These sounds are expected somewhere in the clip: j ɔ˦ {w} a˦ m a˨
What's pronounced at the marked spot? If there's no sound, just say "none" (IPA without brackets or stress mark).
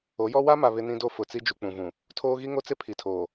w